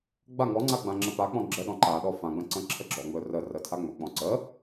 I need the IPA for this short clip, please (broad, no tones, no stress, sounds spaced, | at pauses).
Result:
ɡ͡b a ŋ ɔ ŋ͡ǀ a ɡ͡b ã ŋ͡ǁ ə p a k͡p ɔ̃ ɡ͡ǁ ə ɗ ɔ̃ ǃ a ɗ ɔ f ã ɡ͡b ə̃ ǀ ə̃ ǁʰ ə ɡ͡ǁ ɔ ŋ͡m ɵ r ə r ə tʰ a ŋ͡m ɵ k͡p ɔ̃ ǀ ə